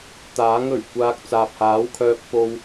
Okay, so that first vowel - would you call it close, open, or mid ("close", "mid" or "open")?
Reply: open